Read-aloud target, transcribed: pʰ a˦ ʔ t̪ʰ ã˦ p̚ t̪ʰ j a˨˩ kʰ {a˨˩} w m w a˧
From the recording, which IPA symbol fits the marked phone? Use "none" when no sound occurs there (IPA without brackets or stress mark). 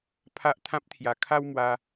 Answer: a˦